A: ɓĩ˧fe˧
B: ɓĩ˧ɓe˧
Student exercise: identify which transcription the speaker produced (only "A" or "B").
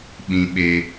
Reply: B